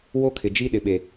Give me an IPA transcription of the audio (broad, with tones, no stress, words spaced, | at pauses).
wo˦kʰɪ˨ d͡ʒi˦ ɗɪ˨ɓe˨